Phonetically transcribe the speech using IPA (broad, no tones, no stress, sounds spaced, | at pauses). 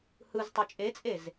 h ɯ z tˤ ø t͡ʃʼ e t͡sʼ e z